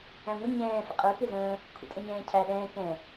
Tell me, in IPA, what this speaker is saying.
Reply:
æ̃ŋʷɪ ɲɛ̃ː fə̰qʼə˞ kɪzə̃ː | kʷʰɛ̰tʼə̃ɲɛ̃ːcʰæ ɗɛ̃ː kɛ̃

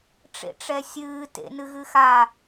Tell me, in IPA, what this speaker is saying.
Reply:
ʈ͡ʂḛʈ͡ʂɛsʲɨː tḛnɨɣɨxa

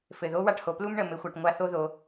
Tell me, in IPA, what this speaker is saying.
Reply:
fɘ˩ðo˧˥wa˧ʈho˩ plu˥mɳə˩mɘ˩˧xʷa˩ʈ ŋʷa˧θo˧ ðo˩

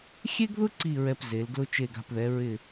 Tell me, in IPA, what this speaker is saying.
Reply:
xʲe˥ɡðʊ˥ ǀi˥˧ɹɛ˧pze˩˧l ɡlʊ˧t͡ʃe˧˩ɡa̤˧˩pðɛ˩˧ ɹɪ˧˩

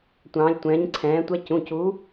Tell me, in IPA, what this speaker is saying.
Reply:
tʷɑ̃ː˨˦lʲtʷɛ̃ː˨˦ɲǀʰɛ̃ː˨˦tʷɛ˦˥ cũ˩˧˩cu˨˦

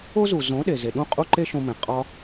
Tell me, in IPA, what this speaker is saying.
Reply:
o˦zu˨ zõ˨˦ ɗe˨ ze˨ ɗũ˦ qʼu˦ǃe˦ʃõ˧ mẽ˨ qʼɒ˦

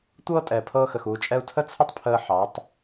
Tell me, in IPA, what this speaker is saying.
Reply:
tʷɤː˦tʼɛ˨pʰɤː˧xə˨x uː˧t͡ʃʼɛ˦u̯ tʰə˦t͡sʰə˦tˤpʰəː˧ ħɑ˨˦tˤ

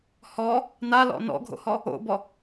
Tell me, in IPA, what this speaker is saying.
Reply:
hɔ | nalɔ̰ nɔ̰ɡʱo̰hɔ | o̰bɔ

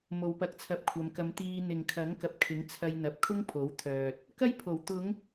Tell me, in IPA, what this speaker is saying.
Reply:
mo˨˧wpɐ˧k̚t͡sʰɐ˧p̚kʷʰɐ˨˧m kɐ˨˧mt̪iː˧ n̪ɪ˨ŋ kʰɐ˨˥ŋkɐ˨p̚ kʰɪ˨˥ŋ t͡sʰɐ˧j n̪ɐ˨p̚kʰʊ˥ŋ pʰo˨˥wt̪ʰœː˨t̚ | kɐ˥j pʰo˨˩wt̪ʊ˨˧ŋ

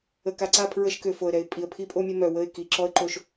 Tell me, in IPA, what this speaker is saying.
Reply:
ə˨ka˨ǀa˦˨ pʰɹə˦ʃkø˨ fo˨ə̯ɾɛ˨ɪ̯pʼi˨ə̯ pʰi˦pʼo˦ mʲə˦mœ˨wə˦˨ɪ̯ ki˨ ǁɔ˦ə̯ǃo˦˨ʃ

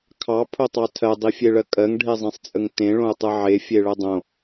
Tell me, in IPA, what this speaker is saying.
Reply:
kʰɑ pʰotˤɑtʰɜ dˤifʲeɭɜkʼɜŋ ɖʱezˤẽsˤt͡sʼəŋtẽ ɭõu̯tˤɯʕe fʲeɭɜdˤõ

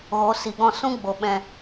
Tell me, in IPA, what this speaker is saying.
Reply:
ɣo˨˦si˨ɡɔ̃˦˨ sũ˦ɡ͡bo˨ ɓɛ̃˧

